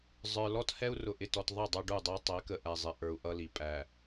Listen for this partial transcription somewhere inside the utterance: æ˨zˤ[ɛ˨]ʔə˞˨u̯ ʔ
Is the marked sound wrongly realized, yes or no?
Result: yes